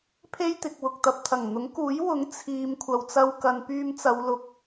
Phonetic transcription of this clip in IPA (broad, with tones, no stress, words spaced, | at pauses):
pʰe˥jt̪ɪ˨k̚wʊ˨k̚t̪ɐ˨p̚ t̪ʰɐ˨˩ŋn̪ʊ˨˥ŋkuː˨˥jwʊ˨˥ŋ t͡sʰiː˨m kʷʰɐ˨w t͡sɐ˧w kɐ˨˧npyː˧mt͡sɐ˨˧w lʊ˨k̚